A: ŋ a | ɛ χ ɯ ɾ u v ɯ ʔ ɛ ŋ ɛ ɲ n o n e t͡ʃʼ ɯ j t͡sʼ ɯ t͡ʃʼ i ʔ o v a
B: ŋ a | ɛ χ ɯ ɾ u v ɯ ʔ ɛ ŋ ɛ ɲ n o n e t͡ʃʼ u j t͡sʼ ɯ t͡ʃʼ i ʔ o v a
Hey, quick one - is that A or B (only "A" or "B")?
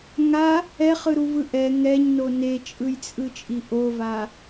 A